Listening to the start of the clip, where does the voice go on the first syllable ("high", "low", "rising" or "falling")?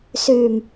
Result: low